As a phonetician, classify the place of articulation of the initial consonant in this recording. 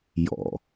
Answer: palatal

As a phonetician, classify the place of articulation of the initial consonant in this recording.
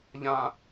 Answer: palatal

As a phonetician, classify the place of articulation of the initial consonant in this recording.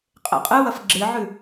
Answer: uvular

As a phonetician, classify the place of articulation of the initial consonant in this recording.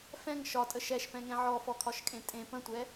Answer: labial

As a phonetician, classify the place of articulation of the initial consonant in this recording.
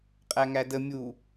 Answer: uvular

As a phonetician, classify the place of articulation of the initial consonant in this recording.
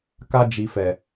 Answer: velar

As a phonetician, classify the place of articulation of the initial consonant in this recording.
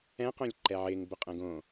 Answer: uvular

